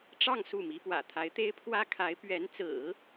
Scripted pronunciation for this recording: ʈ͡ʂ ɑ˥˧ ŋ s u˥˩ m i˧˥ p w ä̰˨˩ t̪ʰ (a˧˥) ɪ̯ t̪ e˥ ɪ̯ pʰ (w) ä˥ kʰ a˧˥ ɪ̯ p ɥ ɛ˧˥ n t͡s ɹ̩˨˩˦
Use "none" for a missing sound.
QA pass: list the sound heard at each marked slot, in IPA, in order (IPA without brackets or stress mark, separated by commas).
a˧˥, w